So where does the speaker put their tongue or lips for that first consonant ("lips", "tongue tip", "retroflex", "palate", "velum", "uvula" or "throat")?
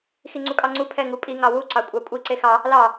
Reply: velum